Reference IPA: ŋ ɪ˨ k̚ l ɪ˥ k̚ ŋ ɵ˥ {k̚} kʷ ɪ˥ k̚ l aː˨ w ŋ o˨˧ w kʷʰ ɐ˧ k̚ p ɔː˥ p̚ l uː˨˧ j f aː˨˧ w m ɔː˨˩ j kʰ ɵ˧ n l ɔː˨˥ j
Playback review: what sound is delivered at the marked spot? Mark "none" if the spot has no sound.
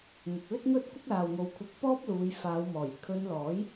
t̚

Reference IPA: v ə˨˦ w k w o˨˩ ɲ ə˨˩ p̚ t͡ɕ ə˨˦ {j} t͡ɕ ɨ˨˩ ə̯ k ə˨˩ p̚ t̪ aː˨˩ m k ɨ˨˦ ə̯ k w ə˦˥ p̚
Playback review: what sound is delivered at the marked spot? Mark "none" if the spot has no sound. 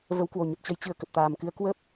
j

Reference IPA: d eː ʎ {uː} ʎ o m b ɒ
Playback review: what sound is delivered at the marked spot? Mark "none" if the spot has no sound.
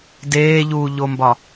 uː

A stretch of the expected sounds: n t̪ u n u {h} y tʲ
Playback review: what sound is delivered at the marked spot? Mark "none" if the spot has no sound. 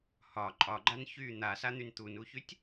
ç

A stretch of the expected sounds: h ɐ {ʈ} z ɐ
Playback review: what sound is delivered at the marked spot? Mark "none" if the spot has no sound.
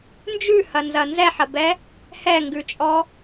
n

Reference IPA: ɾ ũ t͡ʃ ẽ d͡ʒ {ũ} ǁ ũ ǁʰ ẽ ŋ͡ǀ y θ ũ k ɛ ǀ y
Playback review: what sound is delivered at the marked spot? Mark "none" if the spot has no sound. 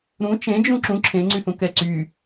ũ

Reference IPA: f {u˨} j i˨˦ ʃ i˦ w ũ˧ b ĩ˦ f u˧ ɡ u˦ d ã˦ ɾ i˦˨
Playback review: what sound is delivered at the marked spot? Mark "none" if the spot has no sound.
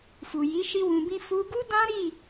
u˨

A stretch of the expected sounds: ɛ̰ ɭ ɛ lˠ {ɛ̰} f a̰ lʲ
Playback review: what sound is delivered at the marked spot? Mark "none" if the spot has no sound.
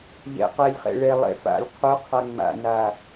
ɛ̰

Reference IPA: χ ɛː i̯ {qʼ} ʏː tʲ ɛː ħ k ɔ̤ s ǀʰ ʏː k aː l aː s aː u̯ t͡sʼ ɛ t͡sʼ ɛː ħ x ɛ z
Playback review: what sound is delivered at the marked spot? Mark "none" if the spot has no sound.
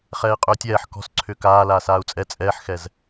qʼ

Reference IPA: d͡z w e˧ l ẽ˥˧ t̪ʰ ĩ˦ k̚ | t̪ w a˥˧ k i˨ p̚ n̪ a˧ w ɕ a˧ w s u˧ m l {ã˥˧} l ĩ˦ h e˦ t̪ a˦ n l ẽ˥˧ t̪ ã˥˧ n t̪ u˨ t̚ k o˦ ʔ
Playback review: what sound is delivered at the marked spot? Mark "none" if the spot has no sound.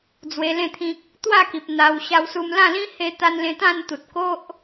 ã˥˧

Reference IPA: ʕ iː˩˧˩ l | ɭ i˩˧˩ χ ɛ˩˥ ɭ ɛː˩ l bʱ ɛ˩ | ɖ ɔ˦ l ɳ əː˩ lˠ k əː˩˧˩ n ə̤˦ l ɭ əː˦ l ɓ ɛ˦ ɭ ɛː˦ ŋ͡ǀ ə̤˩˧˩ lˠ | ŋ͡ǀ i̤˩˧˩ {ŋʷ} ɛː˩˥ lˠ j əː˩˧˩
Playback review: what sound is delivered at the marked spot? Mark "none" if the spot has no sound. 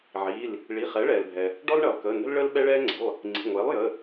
ŋʷ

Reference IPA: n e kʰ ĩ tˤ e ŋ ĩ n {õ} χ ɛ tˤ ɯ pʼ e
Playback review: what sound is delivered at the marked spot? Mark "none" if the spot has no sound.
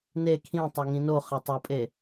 o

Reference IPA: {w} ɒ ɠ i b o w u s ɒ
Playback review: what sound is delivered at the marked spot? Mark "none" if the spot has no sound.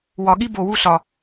w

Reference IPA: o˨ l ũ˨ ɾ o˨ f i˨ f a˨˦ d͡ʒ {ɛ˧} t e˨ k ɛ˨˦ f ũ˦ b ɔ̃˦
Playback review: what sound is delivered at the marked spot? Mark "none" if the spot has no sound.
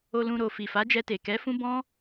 ɛ˧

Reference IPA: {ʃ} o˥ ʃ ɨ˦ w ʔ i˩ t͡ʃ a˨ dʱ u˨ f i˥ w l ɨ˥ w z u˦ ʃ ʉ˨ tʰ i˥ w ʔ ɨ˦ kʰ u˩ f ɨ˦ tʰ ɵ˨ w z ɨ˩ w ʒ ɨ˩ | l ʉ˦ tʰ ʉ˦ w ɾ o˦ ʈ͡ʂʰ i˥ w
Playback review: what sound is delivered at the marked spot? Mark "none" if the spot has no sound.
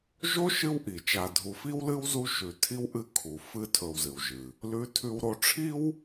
ʒ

